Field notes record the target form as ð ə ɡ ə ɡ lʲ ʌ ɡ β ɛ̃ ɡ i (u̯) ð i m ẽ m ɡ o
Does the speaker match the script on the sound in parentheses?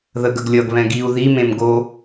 yes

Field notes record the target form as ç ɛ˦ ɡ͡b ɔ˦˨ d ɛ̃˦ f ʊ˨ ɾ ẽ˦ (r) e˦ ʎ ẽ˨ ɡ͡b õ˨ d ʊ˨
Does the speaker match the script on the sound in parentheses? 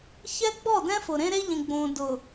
no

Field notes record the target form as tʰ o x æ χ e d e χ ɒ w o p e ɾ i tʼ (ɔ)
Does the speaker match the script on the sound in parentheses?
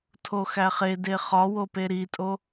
no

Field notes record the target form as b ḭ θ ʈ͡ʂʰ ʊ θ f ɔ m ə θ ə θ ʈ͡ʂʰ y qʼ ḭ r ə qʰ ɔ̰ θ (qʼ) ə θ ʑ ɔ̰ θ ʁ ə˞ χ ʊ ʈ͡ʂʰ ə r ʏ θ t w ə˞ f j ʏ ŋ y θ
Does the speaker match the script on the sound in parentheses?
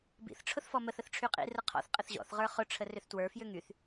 yes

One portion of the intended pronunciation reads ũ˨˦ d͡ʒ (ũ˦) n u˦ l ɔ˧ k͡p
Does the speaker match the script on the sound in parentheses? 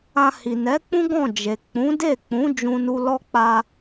yes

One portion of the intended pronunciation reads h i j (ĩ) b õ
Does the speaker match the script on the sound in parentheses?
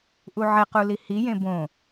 no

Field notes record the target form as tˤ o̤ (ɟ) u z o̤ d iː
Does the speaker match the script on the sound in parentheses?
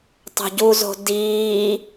yes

